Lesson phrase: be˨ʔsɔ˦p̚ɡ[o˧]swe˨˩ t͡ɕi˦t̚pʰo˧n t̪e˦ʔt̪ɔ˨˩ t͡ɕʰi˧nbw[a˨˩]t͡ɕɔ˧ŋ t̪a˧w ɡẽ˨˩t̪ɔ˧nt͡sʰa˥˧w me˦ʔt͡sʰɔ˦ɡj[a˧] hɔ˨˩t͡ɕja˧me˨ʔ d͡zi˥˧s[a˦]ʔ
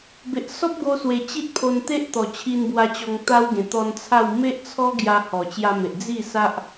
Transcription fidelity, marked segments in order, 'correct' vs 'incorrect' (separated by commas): correct, incorrect, correct, correct